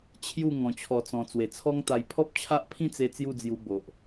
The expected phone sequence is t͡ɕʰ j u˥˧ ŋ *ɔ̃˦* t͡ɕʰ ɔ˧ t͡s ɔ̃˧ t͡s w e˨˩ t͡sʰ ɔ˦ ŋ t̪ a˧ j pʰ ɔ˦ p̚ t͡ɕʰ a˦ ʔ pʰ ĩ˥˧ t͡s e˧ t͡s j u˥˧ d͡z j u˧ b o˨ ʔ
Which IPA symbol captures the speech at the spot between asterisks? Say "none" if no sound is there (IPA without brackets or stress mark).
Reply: ɔ̃˧